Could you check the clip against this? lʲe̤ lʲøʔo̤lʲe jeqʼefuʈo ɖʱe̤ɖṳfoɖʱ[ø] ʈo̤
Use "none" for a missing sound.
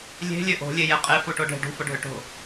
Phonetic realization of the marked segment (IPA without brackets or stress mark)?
ø